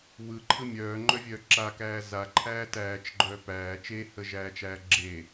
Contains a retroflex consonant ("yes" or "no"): no